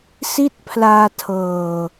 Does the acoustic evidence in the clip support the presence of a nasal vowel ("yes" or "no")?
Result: no